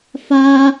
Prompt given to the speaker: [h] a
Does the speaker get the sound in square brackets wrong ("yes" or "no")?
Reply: yes